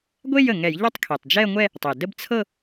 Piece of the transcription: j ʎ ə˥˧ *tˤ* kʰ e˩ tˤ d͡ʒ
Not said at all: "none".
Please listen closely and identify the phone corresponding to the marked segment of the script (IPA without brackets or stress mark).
tˤ